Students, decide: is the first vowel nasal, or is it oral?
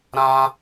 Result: nasal